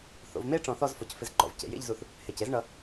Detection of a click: present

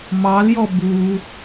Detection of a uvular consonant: absent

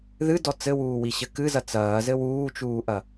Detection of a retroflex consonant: absent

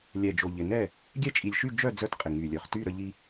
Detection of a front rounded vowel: present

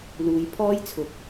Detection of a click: absent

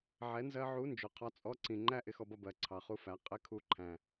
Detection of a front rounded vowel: absent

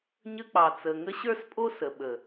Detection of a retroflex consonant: absent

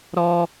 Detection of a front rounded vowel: absent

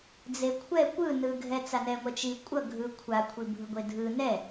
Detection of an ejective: present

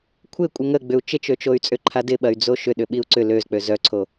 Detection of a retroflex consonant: absent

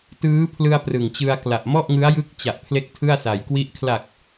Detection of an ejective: absent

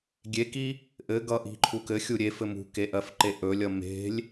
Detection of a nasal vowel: absent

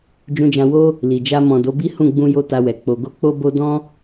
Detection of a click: absent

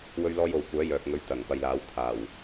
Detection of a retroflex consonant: absent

